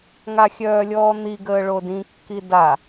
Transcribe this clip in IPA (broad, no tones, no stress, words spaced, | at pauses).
ŋaxʲœːlʲɔːn̪i ɡəːɭodĩ kːida